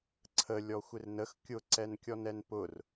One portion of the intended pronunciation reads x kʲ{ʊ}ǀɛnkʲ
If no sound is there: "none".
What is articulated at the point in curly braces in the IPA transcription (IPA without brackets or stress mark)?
ʊ